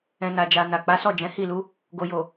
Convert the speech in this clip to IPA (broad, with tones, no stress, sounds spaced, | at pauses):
ɛ̃˨ n a˨ d͡ʒ a˨ n a˨ k͡p a˨˦ s ɔ˦˨ d͡ʒ ɛ̃˨˦ h i˦˨ l u˨˦ | ɡ o˨ j o˨